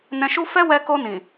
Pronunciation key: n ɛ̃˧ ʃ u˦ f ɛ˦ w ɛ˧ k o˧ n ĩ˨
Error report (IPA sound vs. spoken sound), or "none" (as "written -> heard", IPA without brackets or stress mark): none